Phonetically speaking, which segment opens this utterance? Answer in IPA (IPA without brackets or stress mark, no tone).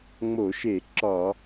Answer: ŋ͡m